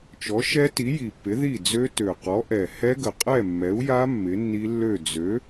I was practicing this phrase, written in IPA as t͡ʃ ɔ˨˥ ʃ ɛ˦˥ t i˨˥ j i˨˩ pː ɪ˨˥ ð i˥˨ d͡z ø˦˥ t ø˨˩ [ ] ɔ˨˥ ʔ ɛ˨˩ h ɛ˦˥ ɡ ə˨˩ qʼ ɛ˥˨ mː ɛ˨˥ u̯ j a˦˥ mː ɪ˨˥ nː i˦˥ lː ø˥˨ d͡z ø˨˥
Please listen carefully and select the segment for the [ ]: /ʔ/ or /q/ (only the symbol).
q